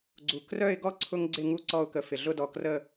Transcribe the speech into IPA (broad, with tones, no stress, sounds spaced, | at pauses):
ɡ͡ǀ u˧ k r œ˥˧ ɪ̯ ɡ ɔ˥ ǀʰ ʊ˥ ŋ ɡ͡ǀ ɪ˥˧ ŋ u˥˧ ǀ ɔ˥˧ ʊ̯ k ə˧ f ɪ˩ ɮ ʊ˥˧ d ɔ˧˩ k r ə˥˧